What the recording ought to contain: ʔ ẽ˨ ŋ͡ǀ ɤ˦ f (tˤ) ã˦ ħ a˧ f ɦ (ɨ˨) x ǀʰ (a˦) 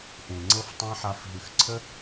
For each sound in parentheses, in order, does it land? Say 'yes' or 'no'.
yes, yes, no

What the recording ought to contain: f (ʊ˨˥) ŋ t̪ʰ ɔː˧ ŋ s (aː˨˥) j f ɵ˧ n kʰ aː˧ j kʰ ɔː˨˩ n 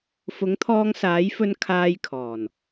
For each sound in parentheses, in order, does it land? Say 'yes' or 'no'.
yes, yes

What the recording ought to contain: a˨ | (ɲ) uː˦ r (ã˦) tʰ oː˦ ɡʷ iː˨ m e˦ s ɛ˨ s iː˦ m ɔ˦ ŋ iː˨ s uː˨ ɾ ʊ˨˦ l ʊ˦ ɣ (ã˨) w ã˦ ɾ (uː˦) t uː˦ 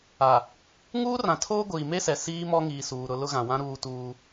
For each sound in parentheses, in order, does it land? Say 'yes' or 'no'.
no, no, yes, yes

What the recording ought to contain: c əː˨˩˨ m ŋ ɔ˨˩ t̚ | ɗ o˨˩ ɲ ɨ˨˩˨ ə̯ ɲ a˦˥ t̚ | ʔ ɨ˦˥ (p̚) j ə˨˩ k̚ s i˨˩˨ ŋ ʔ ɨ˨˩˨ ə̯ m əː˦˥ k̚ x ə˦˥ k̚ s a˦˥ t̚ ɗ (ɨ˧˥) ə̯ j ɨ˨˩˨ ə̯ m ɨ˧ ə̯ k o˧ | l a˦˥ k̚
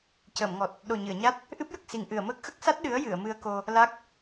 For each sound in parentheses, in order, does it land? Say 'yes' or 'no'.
yes, yes

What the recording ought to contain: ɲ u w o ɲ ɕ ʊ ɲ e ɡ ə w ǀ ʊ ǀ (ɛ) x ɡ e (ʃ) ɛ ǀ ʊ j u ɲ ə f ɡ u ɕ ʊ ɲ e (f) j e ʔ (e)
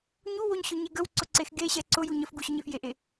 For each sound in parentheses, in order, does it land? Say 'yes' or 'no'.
no, no, yes, yes

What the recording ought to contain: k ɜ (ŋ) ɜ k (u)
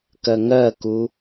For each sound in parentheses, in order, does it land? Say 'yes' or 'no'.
yes, yes

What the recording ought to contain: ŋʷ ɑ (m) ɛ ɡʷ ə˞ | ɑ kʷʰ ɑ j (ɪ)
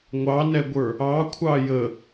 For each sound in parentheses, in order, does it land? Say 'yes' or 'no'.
no, no

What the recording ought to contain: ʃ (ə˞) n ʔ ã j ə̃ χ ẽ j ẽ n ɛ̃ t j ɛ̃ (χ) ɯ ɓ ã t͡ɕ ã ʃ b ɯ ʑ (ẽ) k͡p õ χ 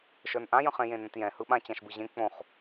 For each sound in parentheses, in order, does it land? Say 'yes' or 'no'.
yes, no, yes

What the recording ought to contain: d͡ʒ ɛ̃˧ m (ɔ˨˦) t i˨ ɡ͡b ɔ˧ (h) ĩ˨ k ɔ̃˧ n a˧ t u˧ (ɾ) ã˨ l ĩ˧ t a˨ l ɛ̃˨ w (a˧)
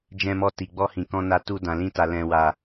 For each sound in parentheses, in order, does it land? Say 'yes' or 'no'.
no, yes, no, no

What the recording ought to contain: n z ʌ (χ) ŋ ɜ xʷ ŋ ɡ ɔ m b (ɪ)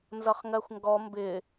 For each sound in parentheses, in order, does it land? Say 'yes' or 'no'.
yes, yes

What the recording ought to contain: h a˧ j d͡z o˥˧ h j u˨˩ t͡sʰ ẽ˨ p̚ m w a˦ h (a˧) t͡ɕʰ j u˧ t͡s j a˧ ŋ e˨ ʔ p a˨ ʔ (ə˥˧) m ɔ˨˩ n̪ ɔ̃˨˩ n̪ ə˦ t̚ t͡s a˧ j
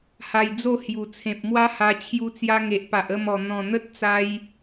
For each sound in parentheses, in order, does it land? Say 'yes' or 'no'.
yes, yes

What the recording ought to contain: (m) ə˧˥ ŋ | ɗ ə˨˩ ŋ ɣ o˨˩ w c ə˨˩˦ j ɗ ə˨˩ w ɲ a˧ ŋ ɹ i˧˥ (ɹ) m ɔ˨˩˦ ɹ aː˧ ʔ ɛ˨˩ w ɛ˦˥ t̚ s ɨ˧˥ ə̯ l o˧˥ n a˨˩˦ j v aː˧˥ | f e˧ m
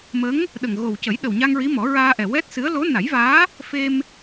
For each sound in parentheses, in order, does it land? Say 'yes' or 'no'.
yes, no

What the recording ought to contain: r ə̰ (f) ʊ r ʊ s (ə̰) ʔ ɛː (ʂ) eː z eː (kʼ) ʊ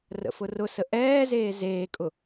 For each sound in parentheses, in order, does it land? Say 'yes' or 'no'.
yes, no, no, yes

